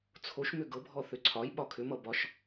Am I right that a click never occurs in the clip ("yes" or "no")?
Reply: no